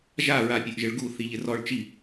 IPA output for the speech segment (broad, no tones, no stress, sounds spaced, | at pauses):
ʒ a ɹ a pʲ ʊ ʔ ʒ ɪ ɭ ɡ u θ i ʎ ɪ r ɔ ɭ t͡ʃ i